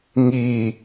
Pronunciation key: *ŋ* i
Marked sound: correct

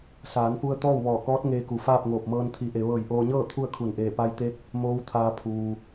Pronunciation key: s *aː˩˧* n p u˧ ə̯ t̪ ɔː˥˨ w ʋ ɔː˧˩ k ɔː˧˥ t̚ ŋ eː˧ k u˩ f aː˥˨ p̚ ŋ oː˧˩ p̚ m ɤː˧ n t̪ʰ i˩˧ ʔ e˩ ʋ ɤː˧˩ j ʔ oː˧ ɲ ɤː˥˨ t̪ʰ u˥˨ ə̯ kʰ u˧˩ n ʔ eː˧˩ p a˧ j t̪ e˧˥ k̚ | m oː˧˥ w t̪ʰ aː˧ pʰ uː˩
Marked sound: correct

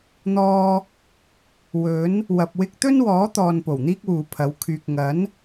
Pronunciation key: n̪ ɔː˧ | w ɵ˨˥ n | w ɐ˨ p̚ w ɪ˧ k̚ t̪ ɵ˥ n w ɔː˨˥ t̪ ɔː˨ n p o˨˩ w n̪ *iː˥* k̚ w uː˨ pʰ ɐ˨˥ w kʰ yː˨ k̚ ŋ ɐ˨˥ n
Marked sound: correct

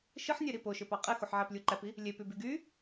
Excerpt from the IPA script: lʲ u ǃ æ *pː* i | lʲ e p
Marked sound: incorrect: p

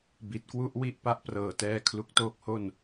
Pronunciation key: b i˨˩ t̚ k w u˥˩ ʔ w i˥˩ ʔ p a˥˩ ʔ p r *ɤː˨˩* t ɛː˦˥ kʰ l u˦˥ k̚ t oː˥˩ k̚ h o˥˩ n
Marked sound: correct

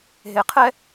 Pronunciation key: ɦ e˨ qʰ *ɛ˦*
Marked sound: correct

